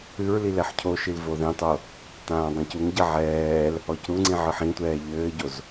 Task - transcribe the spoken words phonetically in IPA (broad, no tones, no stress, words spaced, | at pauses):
ɨɹli lɛħcʰoʃil voðẽtˤo | tãːdˤĩcuŋɟɐ ʕɛːl | ɔcɾuŋ͡ǀĩ ʕɨħĩtʷɛː ʎɘːɟoz